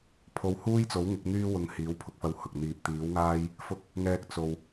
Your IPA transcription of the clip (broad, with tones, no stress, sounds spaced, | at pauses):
pʰ o˧ w h uː˥ j t͡s o˨˥ w ŋ ɪ˨˥ k̚ n̪ yː˥ w ʊ˧ ŋ h iː˨˥ w pʰ ʊ˨˥ k̚ f ɐ˧ w h ʊ˨ k̚ n̪ iː˧ p̚ t̪ iː˨˥ w ŋ aː˥ j | f ʊ˧ k̚ | ŋ ɛː˨ k̚ t͡s o˨ w